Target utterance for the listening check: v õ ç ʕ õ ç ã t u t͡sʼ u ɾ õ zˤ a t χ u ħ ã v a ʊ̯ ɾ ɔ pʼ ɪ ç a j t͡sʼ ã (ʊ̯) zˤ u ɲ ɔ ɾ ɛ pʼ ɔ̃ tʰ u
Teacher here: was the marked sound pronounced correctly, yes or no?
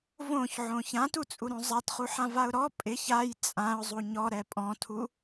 yes